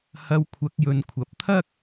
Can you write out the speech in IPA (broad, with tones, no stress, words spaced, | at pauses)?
hɐ˧wkʷʰɐ˨˥k̚jɵ˨˧nkʷʰɐ˨˥p̚ t̪ʰɐ˥k̚